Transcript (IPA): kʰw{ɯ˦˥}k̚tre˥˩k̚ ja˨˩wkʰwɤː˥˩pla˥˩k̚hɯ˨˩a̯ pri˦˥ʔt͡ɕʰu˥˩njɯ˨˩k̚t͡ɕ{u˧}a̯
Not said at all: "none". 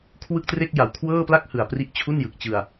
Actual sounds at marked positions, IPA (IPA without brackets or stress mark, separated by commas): ɯ˥˩, ɯ˧